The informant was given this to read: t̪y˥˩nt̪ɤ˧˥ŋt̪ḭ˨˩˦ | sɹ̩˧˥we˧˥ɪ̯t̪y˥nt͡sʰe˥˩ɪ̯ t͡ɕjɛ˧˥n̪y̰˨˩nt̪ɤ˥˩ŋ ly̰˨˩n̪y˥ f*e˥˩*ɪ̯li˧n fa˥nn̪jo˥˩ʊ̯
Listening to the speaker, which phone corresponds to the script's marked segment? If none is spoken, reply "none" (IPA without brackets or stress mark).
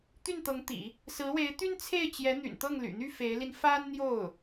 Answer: e˧˥